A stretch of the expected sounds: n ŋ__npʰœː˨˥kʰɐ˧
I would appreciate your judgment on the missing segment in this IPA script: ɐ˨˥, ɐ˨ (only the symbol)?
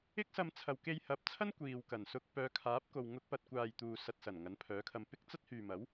ɐ˨˥